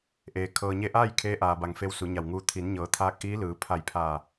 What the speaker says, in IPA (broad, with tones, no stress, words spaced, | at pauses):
ʔeː˩ kʰɤː˩ɲe˧ʔaː˥˨j kʰeː˧˥ʔaː˩ba˩ŋ fe˧˥wsu˩˧ɲa˧˩wŋuː˧ t̪ʰi˩˧nɲɤː˩˧ t̪ʰaː˧˥k̚ʔiː˧˥lɯː˩˧ pʰa˧˩jpʰa˧˩